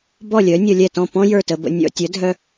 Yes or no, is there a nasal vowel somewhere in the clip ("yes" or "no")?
yes